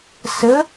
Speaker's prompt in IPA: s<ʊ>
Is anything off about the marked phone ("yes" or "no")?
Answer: yes